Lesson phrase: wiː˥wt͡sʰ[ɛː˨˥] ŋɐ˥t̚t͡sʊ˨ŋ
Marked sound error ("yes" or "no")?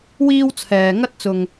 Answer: yes